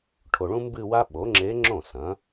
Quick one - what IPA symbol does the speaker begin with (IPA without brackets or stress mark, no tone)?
ʈʰ